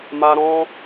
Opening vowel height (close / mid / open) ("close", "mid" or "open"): open